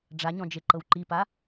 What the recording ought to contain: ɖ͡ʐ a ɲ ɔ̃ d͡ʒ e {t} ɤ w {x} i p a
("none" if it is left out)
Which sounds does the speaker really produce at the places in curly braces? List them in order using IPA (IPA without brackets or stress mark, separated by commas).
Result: ǃ, ǃ